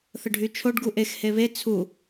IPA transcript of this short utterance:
θ ə ɖʱ y t͡ʃʰ o ɖ ɡ u ʔ e x h e β e t͡sʰ u

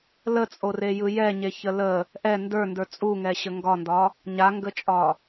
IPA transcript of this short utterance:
l ə t͡sʼ o r e j ɯ j ɛ ɲ e ç ə l ə | ʔ ɛ n d ə˞ n d ə˞ t͡sʼ u ŋ ɛ ɕ ə ŋ ɡ ɒ n d ɒ | ɲ a ŋ ɡ ə t͡ʃʼ ɒ

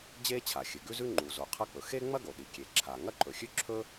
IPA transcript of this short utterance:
d͡ʑ e˥ t͡ɕʰ a˩ xʲ ɨ˩ ɡ ʉ˥ z ʉ˥ ŋ͡ǃ u˩ z o˩ qʰ ɐ˥ k͡p ɵ˩ x e˥ ŋ͡m ɐ˥ ɡ o˩ ɗ i˩ kʲ e˩ ǁʰ a˩ ŋ ɐ˥ ǃ ɵ˩ xʲ ʉ˥ ǁʰ ɵ˥

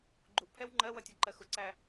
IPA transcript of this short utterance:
ɡ͡ǃ u ʔ pʰ ɛ w ŋ͡ǃ ɜ w ʌ tʲ ʌ ǃ ɜ x ʊ ǀ æ

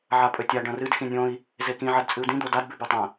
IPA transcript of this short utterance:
ʕ a pʼ ɵ tʲ a ɖ ɐ̃ r ɨ d x ĩ nʲ õ i̯ | z e k ĩ ʕ ɐ d t͡sʼ ɨ u̯ d ĩ d̪ o d a d b ʉ b ʉ tˤ ɐ̃

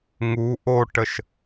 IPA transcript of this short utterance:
ŋ u ʔ o ʈ ə ʃ

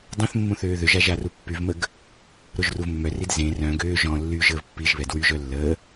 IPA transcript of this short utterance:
dˤ ẽ θ mː ũ θ øː ð ø ʒ a ʒ a r u pː y v m ə ɡ | ɾ o ʒ r u v mː œ r i d z ẽ r œ̃ ɡ øː ʒ ɔ̃ lː y ʒ əː v pː i ʒ β ɛ d w y ʒ œ lː əː

